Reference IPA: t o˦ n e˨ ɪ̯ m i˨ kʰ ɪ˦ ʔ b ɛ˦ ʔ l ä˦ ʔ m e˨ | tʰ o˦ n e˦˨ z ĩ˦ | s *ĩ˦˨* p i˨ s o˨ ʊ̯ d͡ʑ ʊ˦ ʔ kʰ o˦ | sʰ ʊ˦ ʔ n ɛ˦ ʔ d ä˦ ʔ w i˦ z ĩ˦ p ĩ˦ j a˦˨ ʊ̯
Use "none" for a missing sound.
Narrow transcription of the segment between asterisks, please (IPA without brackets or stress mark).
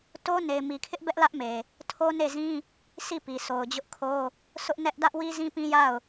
i˦˨